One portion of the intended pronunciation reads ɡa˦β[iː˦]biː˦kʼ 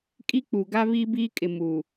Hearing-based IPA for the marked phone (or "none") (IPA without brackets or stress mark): iː˦